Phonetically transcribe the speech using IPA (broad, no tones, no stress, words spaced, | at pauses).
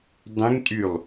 dˤẽŋtʼylˠ